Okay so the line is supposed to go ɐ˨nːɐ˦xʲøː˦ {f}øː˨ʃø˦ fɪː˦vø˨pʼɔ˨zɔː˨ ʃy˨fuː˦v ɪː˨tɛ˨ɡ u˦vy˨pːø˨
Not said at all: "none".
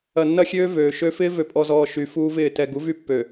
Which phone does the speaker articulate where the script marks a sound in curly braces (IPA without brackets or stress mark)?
v